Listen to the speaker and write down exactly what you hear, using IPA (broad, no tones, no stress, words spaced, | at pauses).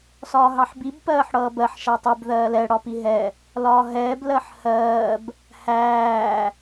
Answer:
sɒːɦɑħbib pɜːħɽʌːbɜħ ʃætˤib ðɜːlɛ ɽɒpiɦɛ | lɒːɦɛːb lɜħhɜːb | hæː